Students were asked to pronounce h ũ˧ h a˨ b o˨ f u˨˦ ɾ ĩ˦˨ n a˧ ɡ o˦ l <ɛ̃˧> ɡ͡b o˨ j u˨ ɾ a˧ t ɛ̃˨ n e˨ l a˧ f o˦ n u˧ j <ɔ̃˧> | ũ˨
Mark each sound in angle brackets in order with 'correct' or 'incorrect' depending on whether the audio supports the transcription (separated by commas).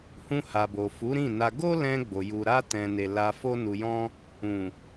correct, incorrect